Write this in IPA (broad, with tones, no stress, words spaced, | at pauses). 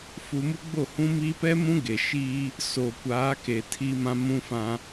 fu˨ mu˦ɡ͡bo˦˨hũ˦miː˦ pɛ˦mũ˦ɡe˨ ʃiː˦ | so˨kʷaː˨˦ke˨ tʰiː˦mã˦mũ˦fã˦